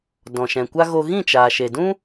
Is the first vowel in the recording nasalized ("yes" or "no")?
yes